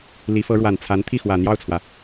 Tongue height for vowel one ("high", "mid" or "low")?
high